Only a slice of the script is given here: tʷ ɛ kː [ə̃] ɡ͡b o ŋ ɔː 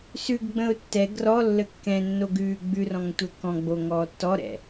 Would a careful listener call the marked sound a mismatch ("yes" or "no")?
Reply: yes